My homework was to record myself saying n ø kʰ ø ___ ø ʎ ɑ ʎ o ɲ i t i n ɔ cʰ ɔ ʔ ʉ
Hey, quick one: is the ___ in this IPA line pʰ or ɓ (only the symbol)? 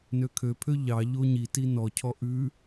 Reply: pʰ